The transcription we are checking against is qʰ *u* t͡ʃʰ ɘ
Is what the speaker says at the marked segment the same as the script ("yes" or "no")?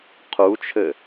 yes